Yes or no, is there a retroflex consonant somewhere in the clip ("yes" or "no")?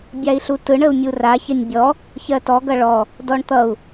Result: yes